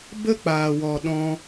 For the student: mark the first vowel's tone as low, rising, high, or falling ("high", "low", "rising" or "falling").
high